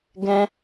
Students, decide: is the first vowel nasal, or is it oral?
nasal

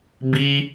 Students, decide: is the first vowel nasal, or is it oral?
oral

